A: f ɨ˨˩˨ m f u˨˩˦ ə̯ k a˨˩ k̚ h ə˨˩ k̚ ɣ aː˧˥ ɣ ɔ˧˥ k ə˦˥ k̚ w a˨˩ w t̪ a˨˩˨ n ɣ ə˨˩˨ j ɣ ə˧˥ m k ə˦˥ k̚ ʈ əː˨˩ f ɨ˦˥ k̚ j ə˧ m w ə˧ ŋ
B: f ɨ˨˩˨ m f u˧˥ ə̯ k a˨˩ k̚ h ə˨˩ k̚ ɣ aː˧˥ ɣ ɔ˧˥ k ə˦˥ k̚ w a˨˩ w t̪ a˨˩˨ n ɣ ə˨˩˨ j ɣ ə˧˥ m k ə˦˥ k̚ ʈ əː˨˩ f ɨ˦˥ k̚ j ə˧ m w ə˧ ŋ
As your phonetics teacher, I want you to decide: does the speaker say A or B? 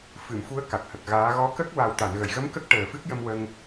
B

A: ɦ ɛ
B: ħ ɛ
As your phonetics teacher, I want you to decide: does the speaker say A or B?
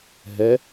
A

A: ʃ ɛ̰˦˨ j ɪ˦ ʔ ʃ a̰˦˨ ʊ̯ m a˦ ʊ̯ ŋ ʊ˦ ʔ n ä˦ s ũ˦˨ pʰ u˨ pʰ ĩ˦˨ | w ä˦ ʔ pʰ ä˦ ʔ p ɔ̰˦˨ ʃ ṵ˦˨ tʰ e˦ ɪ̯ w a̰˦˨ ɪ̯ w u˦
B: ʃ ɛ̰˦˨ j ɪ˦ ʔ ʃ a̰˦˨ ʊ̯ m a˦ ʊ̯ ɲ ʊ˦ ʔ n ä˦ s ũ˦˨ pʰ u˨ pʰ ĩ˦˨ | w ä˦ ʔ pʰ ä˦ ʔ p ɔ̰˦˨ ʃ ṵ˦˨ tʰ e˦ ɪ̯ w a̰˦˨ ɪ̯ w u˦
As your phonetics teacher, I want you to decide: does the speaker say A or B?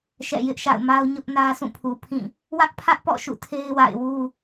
B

